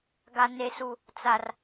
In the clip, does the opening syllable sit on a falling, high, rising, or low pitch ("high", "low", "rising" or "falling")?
low